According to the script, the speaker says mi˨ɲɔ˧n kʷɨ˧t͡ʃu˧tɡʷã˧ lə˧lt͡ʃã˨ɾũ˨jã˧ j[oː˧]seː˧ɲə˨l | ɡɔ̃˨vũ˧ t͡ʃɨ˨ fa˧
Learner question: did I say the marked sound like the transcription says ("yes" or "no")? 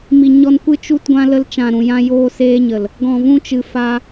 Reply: yes